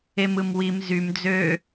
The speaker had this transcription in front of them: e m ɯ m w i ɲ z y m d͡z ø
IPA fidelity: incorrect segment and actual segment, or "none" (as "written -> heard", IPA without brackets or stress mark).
ɲ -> m